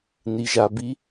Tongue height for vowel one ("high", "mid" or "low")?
high